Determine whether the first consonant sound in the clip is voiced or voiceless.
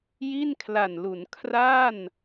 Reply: voiced